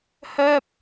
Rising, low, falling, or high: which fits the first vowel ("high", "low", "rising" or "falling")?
high